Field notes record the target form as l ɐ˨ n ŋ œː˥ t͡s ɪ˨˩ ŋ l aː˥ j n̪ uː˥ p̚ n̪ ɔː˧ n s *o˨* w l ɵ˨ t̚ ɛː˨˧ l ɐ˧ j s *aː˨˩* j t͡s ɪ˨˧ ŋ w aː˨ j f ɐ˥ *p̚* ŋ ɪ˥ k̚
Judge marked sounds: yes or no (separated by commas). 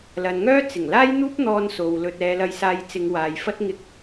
yes, no, no